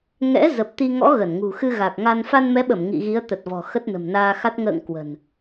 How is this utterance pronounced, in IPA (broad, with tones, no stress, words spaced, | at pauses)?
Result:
ŋɛ̰˧˥ zə˨˩p̚t̪i˧ŋɔ̰˧˥ ɣə˧˩n ŋṳ˨˩xɨ˧ɣa˨˩k̚ŋa˧n fa˧nmɛ˨˦ɓə˧˩m ŋḭ˧˨ɣi˨˦ə̯ t̪ə˨˩t̚vɔ̤˨˩ xə˦˥t̚nə̤˨˩mnaː˧xa˦˥t̚ ŋə̰ː˧˨ŋ kwə̤˨˩n